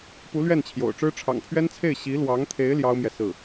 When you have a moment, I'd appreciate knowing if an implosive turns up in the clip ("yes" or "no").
no